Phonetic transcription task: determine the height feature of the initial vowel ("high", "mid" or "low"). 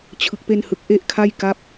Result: high